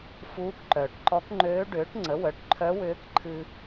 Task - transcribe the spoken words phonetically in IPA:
f uː˧˥ k ǃ œː˩ ʈ ǃ ɔ˧˥ k ŋ͡ǃ øː˧˥ ɖ ʏː˩˥ ʈ ŋ͡ǀ ə˩˥ w œ˩˥ ʈ ǃʰ œ˧˥ w ʏː˧˥ k ǃʰ ɨ˧

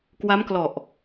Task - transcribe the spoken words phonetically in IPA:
k w a˦˥ m k l ɔ˨˩ ʔ

